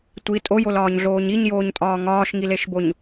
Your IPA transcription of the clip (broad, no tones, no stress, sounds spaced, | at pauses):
tʷ i tʼ o j o l ɒː ɲ ɮ oː ɲ i ɲ j oː ɲ tʼ ɒː ŋ ɒː ʃ ŋ i l e ʃ b o ɲ